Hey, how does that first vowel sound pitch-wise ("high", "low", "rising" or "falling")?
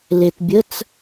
low